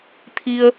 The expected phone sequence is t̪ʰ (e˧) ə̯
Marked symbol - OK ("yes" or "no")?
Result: no